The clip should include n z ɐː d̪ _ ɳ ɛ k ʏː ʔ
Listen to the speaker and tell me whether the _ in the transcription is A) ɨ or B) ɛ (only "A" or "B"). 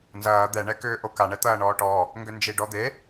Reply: B